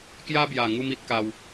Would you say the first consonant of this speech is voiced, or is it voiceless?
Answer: voiceless